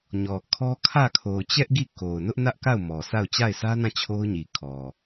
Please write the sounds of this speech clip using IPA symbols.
ɲ ɔ˨ kʰ ɔ˦ kʰ ä˦˨ kʰ o˨ ʊ̯ t͡ɕ ɛ˦ ʔ ɡ i˦˨ k o˨ ʊ̯ n ʊ˦ ʔ n ä˦ ʔ k a˦˨ ʊ̯ m ɔ˨ s a˦˨ ʊ̯ t͡ɕ a˦˨ ɪ̯ s ä˦ n ã˦˨ t͡ɕʰ o˦ ʊ̯ ɲ i˨ kʰ ɔ˨

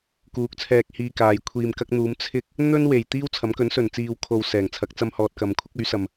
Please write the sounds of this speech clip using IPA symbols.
k uː˨˥ k̚ t͡sʰ ɛː˧ k̚ h iː˧ k aː˨ j kʷʰ iː˨ m k ɐ˧ k̚ n̪ uː˨˧ m t͡sʰ ɪ˧ k̚ | n̪ ɵ˥ n w e˨˩ j t̪ iː˥ w t͡sʰ ɐ˨˥ m k ɵ˨˥ n s ɵ˨˩ n t͡s iː˨ w kʰ o˨ w s ɛː˨˩ ŋ t͡sʰ ɐ˨˥ k̚ t͡s ɐ˧ m h ɔː˨ t̚ k ɐ˨ m kʷʰ ɪ˥ k̚ ɵ˨˥ ɥ s ɐ˨ m

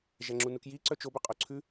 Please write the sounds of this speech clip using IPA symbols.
ʒ æ ŋ͡ǁ u n u k j i ǀ œ t͡ʃ o b œ qʼ o ǀʰ ʉ

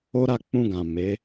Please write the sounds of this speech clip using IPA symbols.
o˦ ɾ a˦˨ k͡p ũ˧ ɡ ã˨ m e˨˦

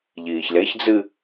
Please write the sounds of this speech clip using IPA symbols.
ʎ iː ç l e ç d͡z ɨ

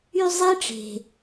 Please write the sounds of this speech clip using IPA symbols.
y˥ zˤ i˦ ʈ͡ʂ e̤˩

